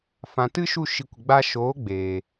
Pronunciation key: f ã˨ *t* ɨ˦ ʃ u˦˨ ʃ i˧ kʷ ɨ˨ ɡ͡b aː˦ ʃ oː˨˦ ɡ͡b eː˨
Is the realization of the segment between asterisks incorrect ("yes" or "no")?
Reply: no